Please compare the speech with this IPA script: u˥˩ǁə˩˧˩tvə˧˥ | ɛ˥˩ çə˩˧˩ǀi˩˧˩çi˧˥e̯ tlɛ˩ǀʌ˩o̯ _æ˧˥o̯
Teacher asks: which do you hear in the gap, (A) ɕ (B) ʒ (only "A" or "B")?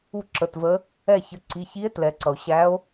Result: A